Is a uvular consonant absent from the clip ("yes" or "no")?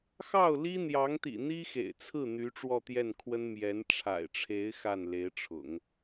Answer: yes